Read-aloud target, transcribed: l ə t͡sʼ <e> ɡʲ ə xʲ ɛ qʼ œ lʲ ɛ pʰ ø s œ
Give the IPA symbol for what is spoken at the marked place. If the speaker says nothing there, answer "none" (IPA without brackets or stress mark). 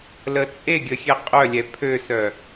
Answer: e